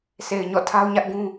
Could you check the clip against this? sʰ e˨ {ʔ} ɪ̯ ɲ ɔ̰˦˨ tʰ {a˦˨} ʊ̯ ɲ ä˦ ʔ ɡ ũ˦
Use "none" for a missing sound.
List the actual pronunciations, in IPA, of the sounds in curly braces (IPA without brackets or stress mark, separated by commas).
none, a˦